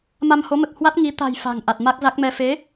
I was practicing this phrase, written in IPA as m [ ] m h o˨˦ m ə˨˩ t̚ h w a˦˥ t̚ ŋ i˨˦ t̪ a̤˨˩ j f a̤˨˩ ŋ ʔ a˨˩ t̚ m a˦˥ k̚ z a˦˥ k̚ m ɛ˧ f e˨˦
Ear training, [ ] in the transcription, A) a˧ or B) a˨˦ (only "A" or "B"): A